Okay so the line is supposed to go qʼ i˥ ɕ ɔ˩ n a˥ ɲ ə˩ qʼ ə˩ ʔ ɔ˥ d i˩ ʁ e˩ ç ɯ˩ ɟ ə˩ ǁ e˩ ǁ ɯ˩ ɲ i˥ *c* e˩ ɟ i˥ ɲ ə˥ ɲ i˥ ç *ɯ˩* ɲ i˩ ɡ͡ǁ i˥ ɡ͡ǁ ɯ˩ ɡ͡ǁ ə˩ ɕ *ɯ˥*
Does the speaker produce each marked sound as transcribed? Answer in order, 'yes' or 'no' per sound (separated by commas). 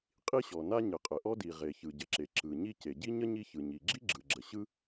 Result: yes, yes, yes